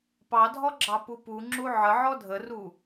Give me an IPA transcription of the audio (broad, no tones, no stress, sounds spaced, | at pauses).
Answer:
p ɑ dʱ ɔ ɡ͡ǁ ɑ p u p u ŋ͡ǁ u ʕ ə ʕ ɔ dʱ ə r u